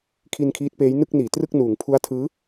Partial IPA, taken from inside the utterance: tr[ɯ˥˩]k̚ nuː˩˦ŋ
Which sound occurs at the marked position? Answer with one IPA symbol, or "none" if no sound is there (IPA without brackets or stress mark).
ɯ˥˩